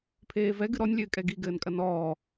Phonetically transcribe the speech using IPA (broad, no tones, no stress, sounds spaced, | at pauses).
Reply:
pʰ eː v ɛ ɡ ɨ ɾ ɔ nʲ lʲ ɘː kʼ ɛ ɡ i ɡ ɘː n kʼ ɐ n ɔː